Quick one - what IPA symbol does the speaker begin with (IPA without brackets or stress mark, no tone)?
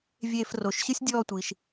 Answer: vʲ